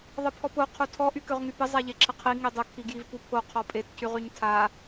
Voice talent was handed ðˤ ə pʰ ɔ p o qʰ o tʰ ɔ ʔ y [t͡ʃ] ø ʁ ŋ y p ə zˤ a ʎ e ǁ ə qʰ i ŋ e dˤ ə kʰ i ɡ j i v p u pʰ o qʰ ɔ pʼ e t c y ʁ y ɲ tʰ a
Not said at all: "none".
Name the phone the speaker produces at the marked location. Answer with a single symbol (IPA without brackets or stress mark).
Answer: k